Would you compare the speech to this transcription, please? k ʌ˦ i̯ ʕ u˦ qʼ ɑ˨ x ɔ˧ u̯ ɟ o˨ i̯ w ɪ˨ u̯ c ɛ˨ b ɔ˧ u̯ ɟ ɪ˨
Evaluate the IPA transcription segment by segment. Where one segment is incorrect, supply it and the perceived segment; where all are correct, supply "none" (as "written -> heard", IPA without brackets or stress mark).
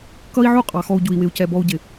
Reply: o˨ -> u˨